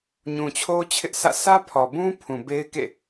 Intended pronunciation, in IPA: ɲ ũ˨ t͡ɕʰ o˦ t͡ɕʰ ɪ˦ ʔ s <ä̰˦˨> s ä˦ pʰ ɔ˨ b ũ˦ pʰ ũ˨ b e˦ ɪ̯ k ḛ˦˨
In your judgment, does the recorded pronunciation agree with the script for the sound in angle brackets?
yes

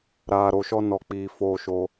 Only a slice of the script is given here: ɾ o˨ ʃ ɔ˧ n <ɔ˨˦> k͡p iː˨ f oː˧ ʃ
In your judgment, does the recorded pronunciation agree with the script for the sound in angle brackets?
yes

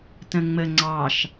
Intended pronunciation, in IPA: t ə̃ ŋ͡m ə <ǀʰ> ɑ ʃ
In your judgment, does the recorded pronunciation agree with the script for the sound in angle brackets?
no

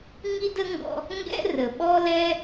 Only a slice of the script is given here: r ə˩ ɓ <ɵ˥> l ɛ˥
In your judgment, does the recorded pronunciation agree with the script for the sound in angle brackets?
no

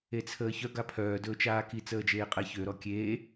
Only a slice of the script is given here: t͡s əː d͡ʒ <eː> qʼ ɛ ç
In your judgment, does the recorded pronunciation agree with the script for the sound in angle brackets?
yes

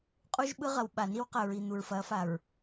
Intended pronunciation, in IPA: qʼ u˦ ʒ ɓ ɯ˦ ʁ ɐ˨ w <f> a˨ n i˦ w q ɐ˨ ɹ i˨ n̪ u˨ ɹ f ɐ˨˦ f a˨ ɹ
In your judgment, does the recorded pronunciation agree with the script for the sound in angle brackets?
no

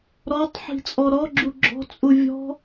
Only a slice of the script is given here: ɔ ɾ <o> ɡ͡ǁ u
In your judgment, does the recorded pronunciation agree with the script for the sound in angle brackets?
no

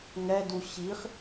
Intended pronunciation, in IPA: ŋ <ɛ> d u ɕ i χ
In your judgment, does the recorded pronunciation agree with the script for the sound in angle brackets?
yes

